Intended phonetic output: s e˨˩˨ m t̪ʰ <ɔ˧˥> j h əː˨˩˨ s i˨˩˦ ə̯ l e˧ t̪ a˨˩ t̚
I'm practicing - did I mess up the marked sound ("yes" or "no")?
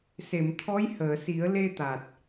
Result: no